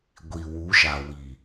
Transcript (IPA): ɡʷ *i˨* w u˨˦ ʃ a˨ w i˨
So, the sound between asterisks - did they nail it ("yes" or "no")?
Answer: yes